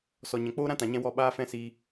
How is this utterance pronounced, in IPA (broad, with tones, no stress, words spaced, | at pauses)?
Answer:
sɔ˨ɲɛ̃˨k͡poː˦ ɾã˦tã˨ɲɛ̃˧ wɔ˧ ɓaː˦fɛ̃˦siː˧